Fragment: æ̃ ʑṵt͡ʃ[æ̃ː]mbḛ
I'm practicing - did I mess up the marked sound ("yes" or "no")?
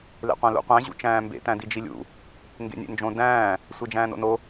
no